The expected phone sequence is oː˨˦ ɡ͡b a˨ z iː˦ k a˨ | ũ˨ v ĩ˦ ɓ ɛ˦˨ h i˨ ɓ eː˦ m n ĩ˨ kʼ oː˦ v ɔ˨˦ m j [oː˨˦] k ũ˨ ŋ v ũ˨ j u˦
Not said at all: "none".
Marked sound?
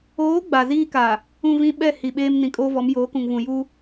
oː˨˦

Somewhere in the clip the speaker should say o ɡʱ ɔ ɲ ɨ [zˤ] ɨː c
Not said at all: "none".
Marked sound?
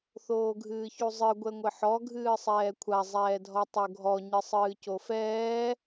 sˤ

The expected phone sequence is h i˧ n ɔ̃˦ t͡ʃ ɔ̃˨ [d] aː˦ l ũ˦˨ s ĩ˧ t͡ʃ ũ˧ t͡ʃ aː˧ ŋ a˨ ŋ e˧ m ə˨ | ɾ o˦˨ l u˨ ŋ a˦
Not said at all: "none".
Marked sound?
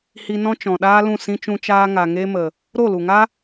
ɗ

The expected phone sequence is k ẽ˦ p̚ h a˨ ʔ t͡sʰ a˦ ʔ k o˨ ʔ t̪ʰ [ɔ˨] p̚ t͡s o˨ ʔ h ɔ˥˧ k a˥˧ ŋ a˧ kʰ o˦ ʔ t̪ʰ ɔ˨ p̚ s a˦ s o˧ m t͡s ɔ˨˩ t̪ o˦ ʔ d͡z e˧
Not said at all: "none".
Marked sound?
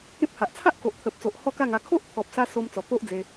ə˨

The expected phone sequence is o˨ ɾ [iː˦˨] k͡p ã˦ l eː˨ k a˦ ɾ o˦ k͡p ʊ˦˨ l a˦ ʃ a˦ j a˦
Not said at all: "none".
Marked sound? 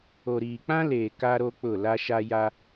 iː˨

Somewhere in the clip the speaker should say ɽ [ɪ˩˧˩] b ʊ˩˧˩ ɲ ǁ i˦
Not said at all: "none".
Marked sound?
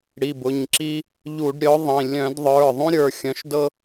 i˩˧˩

